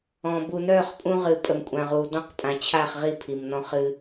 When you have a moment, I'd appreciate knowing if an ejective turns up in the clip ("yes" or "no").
yes